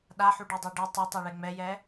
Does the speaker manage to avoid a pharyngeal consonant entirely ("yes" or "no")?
no